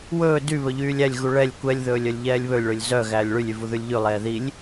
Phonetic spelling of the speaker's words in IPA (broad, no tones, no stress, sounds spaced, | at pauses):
w ɵː d y β ɵ ʎ yː lʲ æ lʲ ɣ u ɭ ɛ lʲ kʷ ɛ lʲ ð ɵː lʲ œ lʲ ʎ ɛː lʲ β ɵ lʲ ɭ ɵ lʲ z œ ɣ æː lʲ ɭ y lʲ y v u ð ʉ lʲ ʎ ʉ lˠ ɛː ð i lʲ